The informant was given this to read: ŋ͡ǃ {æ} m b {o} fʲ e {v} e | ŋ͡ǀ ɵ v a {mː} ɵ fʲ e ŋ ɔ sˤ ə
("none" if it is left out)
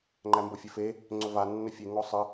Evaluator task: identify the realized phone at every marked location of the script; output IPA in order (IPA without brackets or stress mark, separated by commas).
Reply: æ, o, f, nː